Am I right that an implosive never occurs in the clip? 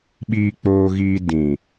no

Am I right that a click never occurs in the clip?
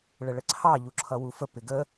no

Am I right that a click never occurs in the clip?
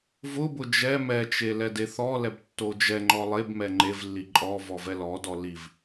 no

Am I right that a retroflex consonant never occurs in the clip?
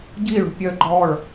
no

